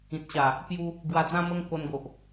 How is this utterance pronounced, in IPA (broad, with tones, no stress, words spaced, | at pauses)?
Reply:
ĩ˨t̚ɕa˨˩ | pju˧ | ɡwa˧d͡zã˦mə˦ŋ ko˧nɡo˨ʔ